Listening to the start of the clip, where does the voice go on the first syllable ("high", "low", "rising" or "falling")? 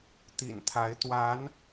low